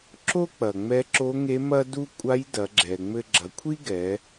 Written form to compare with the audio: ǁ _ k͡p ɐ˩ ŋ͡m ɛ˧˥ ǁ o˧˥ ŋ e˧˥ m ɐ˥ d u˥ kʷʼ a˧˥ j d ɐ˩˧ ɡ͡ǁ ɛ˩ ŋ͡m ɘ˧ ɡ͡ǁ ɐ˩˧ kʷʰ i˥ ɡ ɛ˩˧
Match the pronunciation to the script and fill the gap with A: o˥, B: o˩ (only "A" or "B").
A